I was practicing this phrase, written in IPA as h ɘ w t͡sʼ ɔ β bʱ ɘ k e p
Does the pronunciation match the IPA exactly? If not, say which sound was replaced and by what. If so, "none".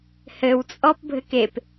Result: β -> p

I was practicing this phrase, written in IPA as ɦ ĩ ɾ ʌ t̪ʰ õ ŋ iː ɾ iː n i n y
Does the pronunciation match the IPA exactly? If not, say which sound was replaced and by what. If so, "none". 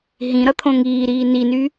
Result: none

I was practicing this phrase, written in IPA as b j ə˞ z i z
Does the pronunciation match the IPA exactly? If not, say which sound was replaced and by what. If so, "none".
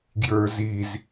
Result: b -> ɡ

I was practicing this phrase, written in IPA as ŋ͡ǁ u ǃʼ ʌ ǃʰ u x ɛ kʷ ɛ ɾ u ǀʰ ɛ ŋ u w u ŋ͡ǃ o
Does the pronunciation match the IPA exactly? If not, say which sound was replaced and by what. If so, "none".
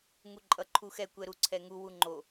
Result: ŋ͡ǁ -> ŋ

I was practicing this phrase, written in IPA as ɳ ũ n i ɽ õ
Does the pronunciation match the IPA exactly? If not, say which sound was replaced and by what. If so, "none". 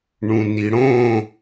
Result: none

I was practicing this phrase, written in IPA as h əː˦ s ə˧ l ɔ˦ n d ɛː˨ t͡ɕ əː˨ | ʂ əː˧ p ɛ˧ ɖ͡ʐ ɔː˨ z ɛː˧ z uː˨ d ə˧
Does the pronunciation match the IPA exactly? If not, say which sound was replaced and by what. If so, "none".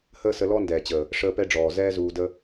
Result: none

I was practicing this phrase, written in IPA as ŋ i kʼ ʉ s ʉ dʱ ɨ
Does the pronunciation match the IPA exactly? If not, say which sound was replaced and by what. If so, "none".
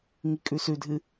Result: none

